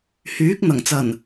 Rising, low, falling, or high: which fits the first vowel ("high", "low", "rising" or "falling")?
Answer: rising